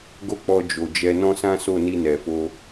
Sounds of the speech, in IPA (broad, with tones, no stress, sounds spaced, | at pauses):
ɡ o˦ k͡p ɔ˧ d͡ʒ o˨ d͡ʒ ɛ˧ n ɔ̃˦ s ã˦ s o˦˨ n i˧ n ɛ˨ f o˧